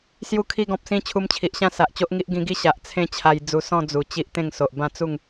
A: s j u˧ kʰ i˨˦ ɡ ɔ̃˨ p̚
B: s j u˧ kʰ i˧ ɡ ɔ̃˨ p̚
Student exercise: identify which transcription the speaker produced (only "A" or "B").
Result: B